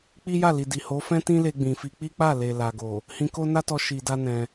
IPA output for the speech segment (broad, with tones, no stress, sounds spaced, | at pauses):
k͡p i˦ j a˦˨ l i˨ d i˨ h o˨˦ f ɛ̃˦ t ĩ˦ l e˧ ɡ͡b ĩ˨ f i˧ k͡p i˦ k͡p a˦˨ l e˨ l a˨ ɡ o˨ | h ĩ˧ k o˦ n a˦ t ɔ˧ ʃ i˨ d a˧ n ɛ̃˧